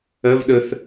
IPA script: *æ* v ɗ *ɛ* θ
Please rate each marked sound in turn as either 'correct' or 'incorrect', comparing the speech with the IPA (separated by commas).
incorrect, incorrect